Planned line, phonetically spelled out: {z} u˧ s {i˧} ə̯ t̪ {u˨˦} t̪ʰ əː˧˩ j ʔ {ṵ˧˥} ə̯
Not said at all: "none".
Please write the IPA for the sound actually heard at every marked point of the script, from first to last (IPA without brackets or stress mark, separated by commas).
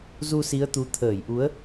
z, i˨˦, u˨˦, u˨˦